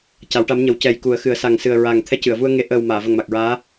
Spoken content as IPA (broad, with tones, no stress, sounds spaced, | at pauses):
c a˨˩˦ w ʈ a˧˥ m ɲ ə˨˩˦ w c ɛ˨˩ j k u˨˩˦ ə̯ x ɨ˨˩˦ ə̯ s a˨˩ ŋ s ɨ˨˩ ə̯ ɹ a˨˩ ŋ t̪ʰ ɛ˧˥ c ɨ˨˩˨ ə̯ v u˧ ə̯ ŋ e˧˥ ʔ əː˨˩ w m aː˨˩˨ v ə˨˩ ŋ m a˨˩ k̚ ɹ aː˧˥